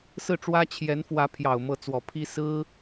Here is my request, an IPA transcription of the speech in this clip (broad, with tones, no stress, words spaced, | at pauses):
sɹ̩˥˩ʈ͡ʂwä˥ t͡ɕʰjɛ˧˥nfwä˧˥pʰjɑ˨˩ʊ̯ mɤ˧˥t͡swɔ˨˩pʰi˥ sɹ̩˥